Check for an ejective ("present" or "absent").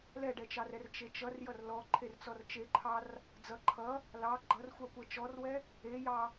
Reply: absent